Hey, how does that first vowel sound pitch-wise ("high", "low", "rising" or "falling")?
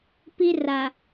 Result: high